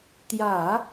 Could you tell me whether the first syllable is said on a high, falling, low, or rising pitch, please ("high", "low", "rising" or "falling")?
low